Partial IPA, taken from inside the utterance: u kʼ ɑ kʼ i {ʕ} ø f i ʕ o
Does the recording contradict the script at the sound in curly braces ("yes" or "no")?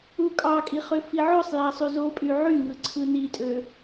yes